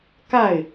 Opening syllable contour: falling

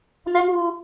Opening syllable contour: high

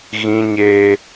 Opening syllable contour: high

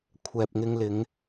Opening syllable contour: low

